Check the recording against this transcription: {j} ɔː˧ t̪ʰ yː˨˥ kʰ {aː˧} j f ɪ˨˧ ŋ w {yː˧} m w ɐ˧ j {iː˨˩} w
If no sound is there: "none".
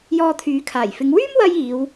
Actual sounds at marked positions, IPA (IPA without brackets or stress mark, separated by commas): j, aː˨˩, yː˥, iː˨˧